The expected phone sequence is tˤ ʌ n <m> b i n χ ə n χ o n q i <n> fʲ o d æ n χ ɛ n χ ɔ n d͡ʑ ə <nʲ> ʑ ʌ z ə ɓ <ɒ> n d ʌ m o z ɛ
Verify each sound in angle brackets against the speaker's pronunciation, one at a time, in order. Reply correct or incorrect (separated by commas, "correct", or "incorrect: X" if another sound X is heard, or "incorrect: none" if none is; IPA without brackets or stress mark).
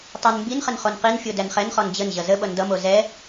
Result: correct, correct, incorrect: n, incorrect: ʌ